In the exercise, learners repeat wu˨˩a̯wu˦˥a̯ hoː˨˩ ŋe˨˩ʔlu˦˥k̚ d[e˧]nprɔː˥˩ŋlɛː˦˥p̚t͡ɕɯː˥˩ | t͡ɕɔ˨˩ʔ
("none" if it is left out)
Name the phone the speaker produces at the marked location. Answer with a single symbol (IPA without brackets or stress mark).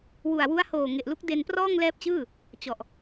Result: e˧